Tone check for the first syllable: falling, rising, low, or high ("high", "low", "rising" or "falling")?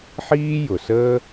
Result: high